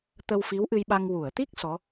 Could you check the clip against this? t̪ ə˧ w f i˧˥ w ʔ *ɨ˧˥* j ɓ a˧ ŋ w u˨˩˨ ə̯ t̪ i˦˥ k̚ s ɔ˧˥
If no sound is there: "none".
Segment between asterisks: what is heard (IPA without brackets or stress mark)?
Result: ɨ˧